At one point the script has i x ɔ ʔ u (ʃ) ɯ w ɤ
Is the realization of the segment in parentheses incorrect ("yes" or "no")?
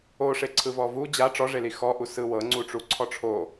yes